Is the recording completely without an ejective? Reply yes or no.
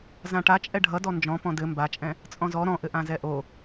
no